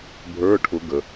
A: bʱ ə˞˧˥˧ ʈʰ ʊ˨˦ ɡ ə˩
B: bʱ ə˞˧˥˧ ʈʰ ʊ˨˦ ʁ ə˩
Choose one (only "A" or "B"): A